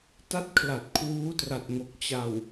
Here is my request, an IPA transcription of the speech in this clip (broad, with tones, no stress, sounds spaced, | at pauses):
t a˥˩ t̚ kʰ l a˨˩ t̚ kʰ w uː˦˥ t r a˨˩ t̚ ŋ o˨˩ k̚ t͡ɕ a˨˩ w